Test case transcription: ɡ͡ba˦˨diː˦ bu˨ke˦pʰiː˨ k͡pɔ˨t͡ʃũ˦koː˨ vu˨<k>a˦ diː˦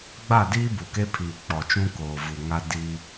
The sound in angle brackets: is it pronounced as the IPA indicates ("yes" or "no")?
no